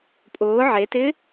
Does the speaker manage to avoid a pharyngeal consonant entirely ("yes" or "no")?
no